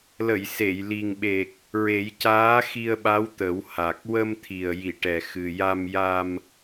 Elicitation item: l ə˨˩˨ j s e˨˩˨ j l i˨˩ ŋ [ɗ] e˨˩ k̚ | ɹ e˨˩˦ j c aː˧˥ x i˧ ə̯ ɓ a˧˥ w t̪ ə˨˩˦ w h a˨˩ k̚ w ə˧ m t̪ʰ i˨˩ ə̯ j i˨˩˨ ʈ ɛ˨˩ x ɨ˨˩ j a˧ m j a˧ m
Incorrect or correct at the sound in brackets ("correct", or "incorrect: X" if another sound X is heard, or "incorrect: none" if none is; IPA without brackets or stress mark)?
incorrect: ɓ